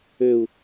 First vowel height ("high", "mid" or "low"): mid